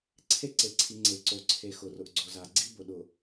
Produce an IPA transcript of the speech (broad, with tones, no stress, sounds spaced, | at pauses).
ǀʰ e˦ ǀ e˨ ǀʰ i˨ ŋ͡ǀ e˨ ǀ o˨ ǀʰ e˨ x ʊ˨ r ʊ˨ ʔ ɡ͡ǀ o˨ z a˨ ɡ͡ǀ i˦ b ʊ˨ ɗ ʊ˨